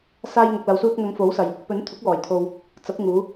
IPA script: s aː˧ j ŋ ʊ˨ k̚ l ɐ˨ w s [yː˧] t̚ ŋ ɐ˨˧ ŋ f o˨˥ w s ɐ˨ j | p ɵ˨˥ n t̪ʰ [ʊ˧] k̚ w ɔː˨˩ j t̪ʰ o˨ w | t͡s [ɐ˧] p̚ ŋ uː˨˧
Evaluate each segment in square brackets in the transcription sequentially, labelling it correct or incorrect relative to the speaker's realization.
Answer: incorrect: uː˧, incorrect: ʊ˨˥, incorrect: ɐ˨˥

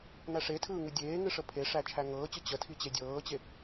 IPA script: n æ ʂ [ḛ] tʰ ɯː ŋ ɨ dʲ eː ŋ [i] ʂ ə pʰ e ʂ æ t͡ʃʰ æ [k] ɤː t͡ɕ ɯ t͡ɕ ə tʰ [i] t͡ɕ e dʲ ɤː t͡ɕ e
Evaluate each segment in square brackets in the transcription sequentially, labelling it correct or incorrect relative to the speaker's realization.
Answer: incorrect: e, incorrect: ɨ, incorrect: ŋ, correct

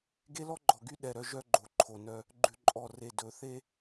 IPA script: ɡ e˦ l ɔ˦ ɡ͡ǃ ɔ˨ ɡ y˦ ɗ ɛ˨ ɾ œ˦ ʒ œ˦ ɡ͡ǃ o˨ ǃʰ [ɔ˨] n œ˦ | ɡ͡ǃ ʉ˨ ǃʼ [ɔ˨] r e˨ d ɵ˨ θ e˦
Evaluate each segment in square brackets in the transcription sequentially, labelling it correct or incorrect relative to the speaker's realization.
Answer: incorrect: o˨, correct

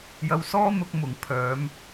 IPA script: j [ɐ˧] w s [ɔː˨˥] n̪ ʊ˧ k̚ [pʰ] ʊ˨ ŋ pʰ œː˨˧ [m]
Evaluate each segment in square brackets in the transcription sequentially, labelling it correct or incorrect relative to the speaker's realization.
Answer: correct, incorrect: ɔː˥, incorrect: m, correct

